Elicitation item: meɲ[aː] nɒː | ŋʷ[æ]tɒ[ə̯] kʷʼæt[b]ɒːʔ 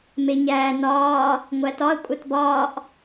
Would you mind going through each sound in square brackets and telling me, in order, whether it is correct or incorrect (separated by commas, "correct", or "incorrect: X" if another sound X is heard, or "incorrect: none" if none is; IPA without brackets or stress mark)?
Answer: incorrect: æː, correct, correct, correct